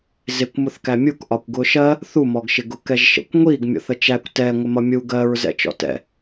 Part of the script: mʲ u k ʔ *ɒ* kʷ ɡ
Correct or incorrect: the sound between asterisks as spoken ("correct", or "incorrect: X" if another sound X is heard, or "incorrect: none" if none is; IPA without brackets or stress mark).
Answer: correct